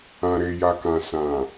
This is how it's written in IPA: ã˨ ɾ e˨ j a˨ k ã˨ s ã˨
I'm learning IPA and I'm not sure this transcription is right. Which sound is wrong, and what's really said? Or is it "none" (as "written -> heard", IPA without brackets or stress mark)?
none